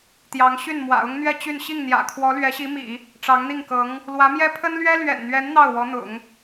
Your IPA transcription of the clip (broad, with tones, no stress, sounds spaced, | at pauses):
t̪ j ɑ˧˥ ŋ ɕ y˥˩ n m w ä̰˨˩ ʊ˥ ŋ n̪ ɥ ɛ˥˧ t͡ɕ y˥˧ n ɕ i˥˩ ŋ n̪ j ä̰˨˩ kʰ w ɔ˧˥ l ɥ ɛ˧˥ ɕ i˧˥ m ḭ˨˩˦ | ʈ͡ʂ ɑ˧˥ ŋ n̪ i˥˩ ŋ k ɤ˧˥ ŋ | l w ä˧˥ m j ɛ˥ pʰ ə˥ n l ɥ ɛ˥ l ɥ ɛ̰˨˩ n n̪ ɥ ɛ˧˥ n n̪ ɑ˥˩ ʊ̯ w ɔ˧˥ n̪ ʊ̰˨˩˦ ŋ